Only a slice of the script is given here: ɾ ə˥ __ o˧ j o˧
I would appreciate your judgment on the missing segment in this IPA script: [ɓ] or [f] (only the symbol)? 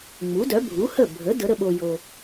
ɓ